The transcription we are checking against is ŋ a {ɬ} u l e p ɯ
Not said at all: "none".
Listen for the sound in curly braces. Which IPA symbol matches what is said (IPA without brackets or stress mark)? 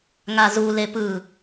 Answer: z